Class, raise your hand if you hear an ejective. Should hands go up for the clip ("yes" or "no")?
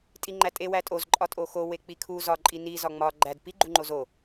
yes